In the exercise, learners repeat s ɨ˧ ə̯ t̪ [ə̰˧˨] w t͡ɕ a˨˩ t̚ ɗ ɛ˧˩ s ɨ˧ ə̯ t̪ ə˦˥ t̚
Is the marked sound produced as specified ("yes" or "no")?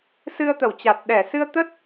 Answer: no